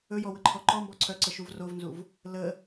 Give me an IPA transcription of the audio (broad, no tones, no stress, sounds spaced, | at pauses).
ɵ j ɔ w ə ǃʰ ɔ ǃ ɔ m b ɔ ǀʰ œ ǀ ə ʃ u v r o v n z u v | l ə